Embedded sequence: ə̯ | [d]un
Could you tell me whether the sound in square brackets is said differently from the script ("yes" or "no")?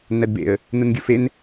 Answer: yes